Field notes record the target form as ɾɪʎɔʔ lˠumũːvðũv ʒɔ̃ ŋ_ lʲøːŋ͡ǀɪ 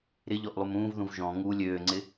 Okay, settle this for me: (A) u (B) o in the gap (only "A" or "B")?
A